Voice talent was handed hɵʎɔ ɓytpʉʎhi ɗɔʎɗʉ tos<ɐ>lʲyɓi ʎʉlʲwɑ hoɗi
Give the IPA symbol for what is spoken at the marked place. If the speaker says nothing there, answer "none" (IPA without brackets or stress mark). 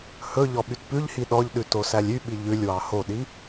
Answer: æ